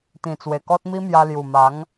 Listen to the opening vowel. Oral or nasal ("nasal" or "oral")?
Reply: nasal